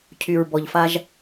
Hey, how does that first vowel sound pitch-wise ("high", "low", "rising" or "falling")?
low